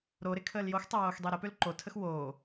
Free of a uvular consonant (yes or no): yes